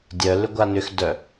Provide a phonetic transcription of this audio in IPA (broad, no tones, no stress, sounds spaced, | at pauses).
dʲ œ l ʏ ɡʷ a n ʏ x d œ